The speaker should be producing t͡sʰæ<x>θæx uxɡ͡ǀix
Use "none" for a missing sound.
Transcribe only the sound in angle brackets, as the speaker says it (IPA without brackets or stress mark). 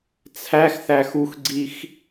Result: x